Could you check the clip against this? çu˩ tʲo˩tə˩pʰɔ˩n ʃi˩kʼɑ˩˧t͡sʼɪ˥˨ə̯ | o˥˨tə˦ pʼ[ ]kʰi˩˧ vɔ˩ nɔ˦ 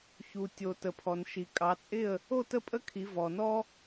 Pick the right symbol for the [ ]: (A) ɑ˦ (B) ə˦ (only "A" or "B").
B